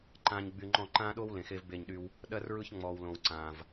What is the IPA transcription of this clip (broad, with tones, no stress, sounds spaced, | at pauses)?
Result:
ǃ ãː˨ ɲ ɡ͡b y˨ ŋ͡ǃ ɔ̃˦˨ ǃ ãː˦ ɗ o˦ w l ẽ˨ x e˦ v b e˦˨ ɲ ɗ y˦ w | ɗ ɜ˦ r ɹ ɯ˦ ç ŋ͡m ɔː˨ w l õ˨ w ǀ ãː˨ v